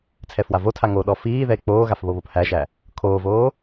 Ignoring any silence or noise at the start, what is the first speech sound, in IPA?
t͡sʰ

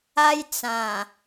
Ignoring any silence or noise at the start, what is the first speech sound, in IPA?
a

